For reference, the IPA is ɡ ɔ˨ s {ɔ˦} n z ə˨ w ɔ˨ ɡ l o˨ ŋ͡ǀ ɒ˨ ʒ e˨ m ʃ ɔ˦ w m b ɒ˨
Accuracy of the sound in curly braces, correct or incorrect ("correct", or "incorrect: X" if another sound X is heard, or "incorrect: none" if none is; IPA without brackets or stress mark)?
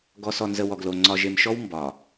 incorrect: ɔ˨